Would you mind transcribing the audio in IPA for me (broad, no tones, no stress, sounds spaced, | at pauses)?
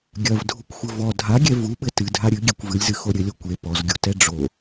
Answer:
ɡʲ ɐ v dʱ u kʷ xʷ ɘ v ɔ dʱ a ɡʲ ɛ v u ɓ ɘ t ɨ dʱ a ɾʲ ɨ ɡʲ e kʷ v ɨ lʲ z ɨ x o ɾʲ ɘ lʲ o kʷ e p ɔ z ɡʲ u t ɛ ɖ͡ʐ o